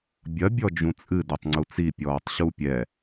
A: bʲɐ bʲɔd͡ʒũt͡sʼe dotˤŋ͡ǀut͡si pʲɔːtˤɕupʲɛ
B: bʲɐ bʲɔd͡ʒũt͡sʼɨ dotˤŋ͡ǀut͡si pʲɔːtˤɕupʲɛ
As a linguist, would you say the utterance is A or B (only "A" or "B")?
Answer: B